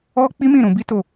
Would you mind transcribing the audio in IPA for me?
ɔ˦ k͡pi˦mĩ˦˨ ɾũ˧ bi˦to˦˨

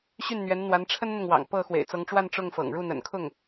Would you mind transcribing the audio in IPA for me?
ɕy˥˩nn̪ɥɛ˧˥n n̪wa˧˥nʈ͡ʂʰə˥nn̪ʊ˨ŋwɑ̰˨˩ŋ pɤ˥˩ xwḛ˨˩ɪ̯t͡sɤ˧˥ŋʈ͡ʂwa˥˧n ʈ͡ʂʊ˥˩ŋfɤ̰˨˩ŋ ɻu˥˩n̪ə̰˨˩nkʰʊ˥˩ŋ

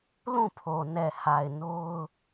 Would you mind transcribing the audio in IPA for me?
lũ˦˨pʰo˨nɛ˨ha˨ɪ̯ no˦ʊ̯

